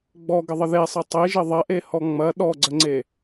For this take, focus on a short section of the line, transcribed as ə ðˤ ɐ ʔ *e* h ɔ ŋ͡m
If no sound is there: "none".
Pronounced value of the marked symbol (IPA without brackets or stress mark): e